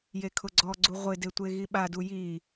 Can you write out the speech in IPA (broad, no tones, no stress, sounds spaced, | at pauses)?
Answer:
j e kʰ ʊ ɡ͡ǀ ɔ ɡ͡ǀ u ʁʷ ɪ d e tʷ e ɣ i ɓ a d u j i